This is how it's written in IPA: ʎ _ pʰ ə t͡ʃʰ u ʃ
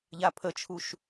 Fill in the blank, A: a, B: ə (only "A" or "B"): A